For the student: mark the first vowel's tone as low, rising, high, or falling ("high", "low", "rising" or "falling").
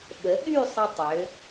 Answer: rising